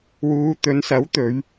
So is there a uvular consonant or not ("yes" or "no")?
no